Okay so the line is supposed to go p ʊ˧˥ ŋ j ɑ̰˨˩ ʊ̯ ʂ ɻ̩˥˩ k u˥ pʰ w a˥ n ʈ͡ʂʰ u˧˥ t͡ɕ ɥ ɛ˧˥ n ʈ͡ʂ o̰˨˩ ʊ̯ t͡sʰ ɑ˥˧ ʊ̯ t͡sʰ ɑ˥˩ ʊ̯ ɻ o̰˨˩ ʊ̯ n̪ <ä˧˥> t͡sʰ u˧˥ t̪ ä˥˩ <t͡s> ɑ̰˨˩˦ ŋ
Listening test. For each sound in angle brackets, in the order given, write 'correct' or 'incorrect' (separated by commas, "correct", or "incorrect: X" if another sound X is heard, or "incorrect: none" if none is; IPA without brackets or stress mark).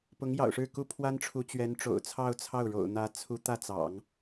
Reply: correct, correct